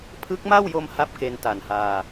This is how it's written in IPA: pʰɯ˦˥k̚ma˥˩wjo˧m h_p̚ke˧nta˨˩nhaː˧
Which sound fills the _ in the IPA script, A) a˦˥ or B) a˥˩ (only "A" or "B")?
B